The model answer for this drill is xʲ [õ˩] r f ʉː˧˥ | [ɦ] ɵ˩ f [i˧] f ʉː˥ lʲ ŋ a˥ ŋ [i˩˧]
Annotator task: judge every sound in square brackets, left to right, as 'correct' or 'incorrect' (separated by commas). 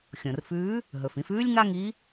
correct, correct, incorrect, incorrect